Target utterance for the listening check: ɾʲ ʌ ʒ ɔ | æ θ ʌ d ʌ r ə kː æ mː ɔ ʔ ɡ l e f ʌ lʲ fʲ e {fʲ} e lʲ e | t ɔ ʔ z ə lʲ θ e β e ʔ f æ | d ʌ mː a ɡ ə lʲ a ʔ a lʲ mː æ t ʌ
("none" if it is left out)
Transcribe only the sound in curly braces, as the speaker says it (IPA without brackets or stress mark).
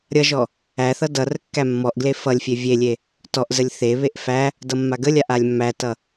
vʲ